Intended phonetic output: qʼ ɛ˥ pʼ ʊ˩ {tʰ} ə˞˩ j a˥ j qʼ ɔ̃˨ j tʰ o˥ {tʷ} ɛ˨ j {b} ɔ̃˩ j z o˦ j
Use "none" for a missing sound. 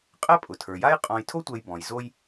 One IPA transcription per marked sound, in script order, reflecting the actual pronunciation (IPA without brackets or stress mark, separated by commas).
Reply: tʰ, tʷ, b